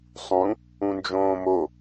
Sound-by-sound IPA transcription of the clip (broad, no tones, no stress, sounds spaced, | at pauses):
sˤ ũ | ũ n d͡ʒ õː m o